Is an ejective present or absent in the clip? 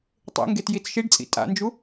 present